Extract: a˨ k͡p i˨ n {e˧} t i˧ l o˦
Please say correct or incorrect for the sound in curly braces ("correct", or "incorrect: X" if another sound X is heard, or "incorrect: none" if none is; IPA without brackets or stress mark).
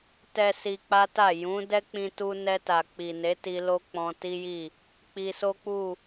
incorrect: e˨˦